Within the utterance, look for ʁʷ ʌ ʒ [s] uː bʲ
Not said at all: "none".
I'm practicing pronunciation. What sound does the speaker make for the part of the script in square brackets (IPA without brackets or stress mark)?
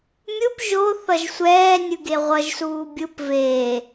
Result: s